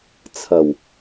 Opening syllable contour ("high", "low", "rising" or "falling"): low